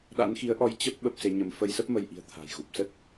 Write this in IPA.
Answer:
ɗ a̰˧˥ n x i˨˦ ə̯ ʔ ɔ˧ j t͡ɕ ə˦˥ p̚ ɓ ə˦˥ p̚ s e˨˦ ɲ ə˧ m f ə˧ j s ə˦˥ p̚ m ə˧ j ʔ i̤˨˩ ə̯ t̪ʰ a̤˨˩ j ɣ u˨˩ p̚ s ə˦˥ t̚

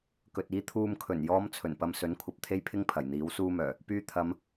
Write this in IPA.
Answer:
k ɵ˨ t̚ iː˧ t̪ʰ uː˨ m kʰ ɵ˨˩ n j ɔː˨˧ m t͡sʰ ɵ˨˩ n p ɐ˧ m s ɵ˨˥ n kʷʰ ɐ˨ p̚ t̪ʰ e˥ j pʰ ɪ˥ ŋ pʰ ɐ˨˩ j n̪ iː˨˥ w s uː˥ m œː˨˩ | p yː˧ t̪ʰ ɐ˨˧ m

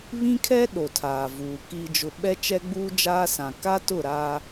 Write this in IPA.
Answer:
β ĩ˦ kʰ ɛ˦ ɗ o˨ tʰ aː˨ v uː˨ k iː˨ d͡ʒ ʊ˨ ɓ ɛ˦ t͡ʃ ɛ˦ ɡ͡b uː˦ d͡ʒ aː˦ s ã˨ k a˦ t ʊ˦˨ ɾ aː˦

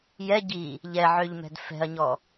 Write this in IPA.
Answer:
j ɛ ɟ i | ʎ ɛ ʕ ø ʎ m ɛ̤ d f ɛ̤ ɐ̯ ɲ ɔ

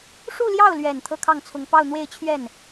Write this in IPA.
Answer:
ʂ u˥˧ l j ɑ˥˩ ʊ̯ l ɥ ɛ˨˩ n t̪ʰ ɤ˥˧ kʰ ɑ˥˩ ŋ t͡sʰ ʊ˧˥ ŋ p ɑ˥˧ ʊ̯ n̪ w e˥˧ ɪ̯ t͡ɕʰ ɥ ɛ˥˩ n

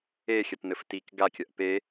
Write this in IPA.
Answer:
e xʲ ɐ t n̪ ɘ f t i k ɡ a kʲ ɐ ʔ p e

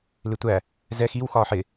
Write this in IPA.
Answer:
l ɪ tʷ æ | z ɛ x i w x ɒː ħ ɪ

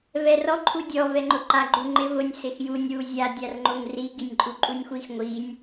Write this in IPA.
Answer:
v ɛ r ɔ ǃʰ u dʲ ɔ v ɛ ŋ͡ǃ ʊ ǃ a ɡ͡ǃ u ŋ͡ǃ ɪ v ʊ nʲ s ɪ x j u nʲ w u zʲ a dʲ a r ŋ͡ǃ o ŋ r i ɡ i nʲ ǃʼ u ǃʼ u nʲ xʷ i x ŋʷ i nʲ

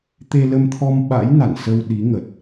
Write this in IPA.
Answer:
t̪ e˧ l ə˧ m t̪ʰ ɔ˧ m ɓ a̰˧˥ j n a̰˧˨ n s ə˧ w ɗ i˨˦ ŋ ə˨˩ t̚

